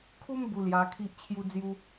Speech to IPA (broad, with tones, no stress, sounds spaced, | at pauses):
kʰ u˦ m b u˧ l j a˧ kʰ i˦ ʔ t͡ɕʰ j u˦ d͡z j u˦